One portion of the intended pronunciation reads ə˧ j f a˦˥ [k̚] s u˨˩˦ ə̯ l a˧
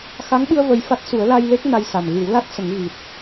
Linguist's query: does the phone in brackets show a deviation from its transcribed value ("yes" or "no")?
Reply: yes